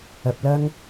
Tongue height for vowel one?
low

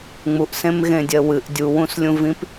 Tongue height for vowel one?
high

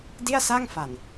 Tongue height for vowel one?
high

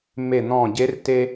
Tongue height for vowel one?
mid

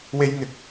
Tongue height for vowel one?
mid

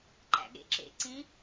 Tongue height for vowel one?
low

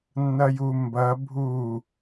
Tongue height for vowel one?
low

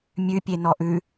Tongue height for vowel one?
high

